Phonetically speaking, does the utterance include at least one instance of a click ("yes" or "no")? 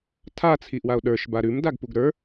no